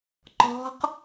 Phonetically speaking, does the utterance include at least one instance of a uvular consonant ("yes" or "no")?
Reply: yes